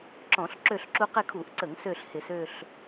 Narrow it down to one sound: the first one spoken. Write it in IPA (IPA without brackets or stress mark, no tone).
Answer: ǁ